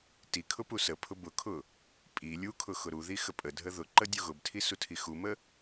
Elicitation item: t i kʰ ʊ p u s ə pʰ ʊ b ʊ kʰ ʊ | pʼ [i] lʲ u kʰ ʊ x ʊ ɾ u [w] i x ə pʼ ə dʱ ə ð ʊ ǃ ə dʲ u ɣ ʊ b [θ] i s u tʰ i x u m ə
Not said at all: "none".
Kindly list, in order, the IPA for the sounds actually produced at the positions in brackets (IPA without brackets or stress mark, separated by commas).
i, ð, tʰ